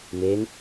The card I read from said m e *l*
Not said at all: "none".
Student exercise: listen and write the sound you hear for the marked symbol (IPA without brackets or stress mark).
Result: n